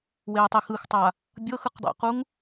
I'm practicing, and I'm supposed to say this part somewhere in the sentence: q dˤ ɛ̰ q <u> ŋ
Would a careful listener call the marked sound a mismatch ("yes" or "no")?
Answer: no